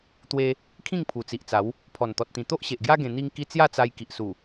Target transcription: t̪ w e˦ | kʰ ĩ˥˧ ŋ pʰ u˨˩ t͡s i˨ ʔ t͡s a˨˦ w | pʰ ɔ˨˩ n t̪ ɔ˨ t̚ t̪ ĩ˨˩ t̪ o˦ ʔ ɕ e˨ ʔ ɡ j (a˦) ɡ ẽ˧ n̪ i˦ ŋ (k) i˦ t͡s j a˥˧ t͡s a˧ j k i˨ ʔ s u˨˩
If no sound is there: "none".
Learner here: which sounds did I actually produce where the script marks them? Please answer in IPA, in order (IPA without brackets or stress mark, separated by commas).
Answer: a˦, k